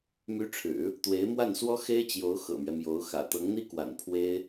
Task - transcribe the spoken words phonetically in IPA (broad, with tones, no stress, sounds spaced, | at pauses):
m y˧˥ ʈ͡ʂʰ ɻ̩˨˩˦ | t̪ w e˧˥ ɪ̯ m w a˥˩ n s w ɔ˥ x e˥ ɪ̯ t͡ɕ j o˧˥ ʊ̯ x ɤ̰˨˩ m ɥ ɛ˦ m j o˧˥ ʊ̯ x ä̰˨˩ t̪ ɤ˧˥ ŋ n̪ i˥ k w a̰˨˩ n pʰ w e˥ ɪ̯